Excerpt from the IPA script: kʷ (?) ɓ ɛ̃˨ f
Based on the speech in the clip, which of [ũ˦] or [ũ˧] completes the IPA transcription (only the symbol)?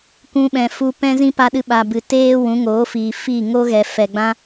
ũ˧